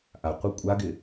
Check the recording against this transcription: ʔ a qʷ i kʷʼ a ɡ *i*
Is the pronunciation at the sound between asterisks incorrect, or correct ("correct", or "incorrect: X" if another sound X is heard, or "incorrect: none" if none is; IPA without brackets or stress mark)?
incorrect: ɪ